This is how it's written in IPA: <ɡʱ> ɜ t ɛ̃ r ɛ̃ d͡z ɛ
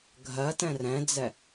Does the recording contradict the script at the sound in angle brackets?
no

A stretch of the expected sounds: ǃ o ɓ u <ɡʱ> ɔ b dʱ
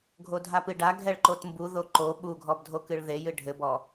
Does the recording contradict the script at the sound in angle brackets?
no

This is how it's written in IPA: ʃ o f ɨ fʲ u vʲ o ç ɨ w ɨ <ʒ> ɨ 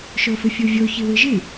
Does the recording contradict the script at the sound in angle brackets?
no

